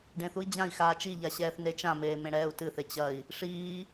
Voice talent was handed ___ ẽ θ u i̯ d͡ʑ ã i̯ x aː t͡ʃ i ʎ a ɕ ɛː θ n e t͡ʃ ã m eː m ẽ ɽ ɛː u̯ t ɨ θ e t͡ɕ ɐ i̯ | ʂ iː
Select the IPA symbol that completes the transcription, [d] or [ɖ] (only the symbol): ɖ